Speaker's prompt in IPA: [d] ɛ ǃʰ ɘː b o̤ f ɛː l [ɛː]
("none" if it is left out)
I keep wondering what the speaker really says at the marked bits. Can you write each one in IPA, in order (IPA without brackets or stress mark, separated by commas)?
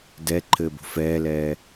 d, ɛː